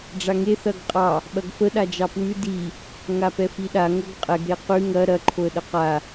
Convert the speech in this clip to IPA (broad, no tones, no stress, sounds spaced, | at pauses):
ɖ͡ʐ a ŋ e θ ɐ ɡ qʼ ɑ | ɓ ɐ ɡ f ə ɗ a d͡ʒ ɑ p w ʉ d i | ŋ a p ɛ f i ɗ a ŋ o ɡ qʼ ɛ ɡ ɾ e q ʉ ŋ ɐ ɾ ɐ ǃʰ o ə̯ ɗ ə q a